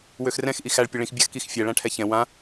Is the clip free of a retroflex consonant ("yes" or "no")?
no